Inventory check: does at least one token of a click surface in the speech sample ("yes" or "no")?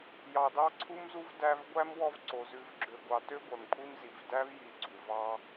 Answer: yes